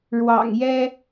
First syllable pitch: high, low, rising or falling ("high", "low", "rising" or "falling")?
low